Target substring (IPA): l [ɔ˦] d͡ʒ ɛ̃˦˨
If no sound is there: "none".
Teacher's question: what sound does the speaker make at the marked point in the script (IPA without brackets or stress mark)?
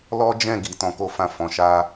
ɔ˦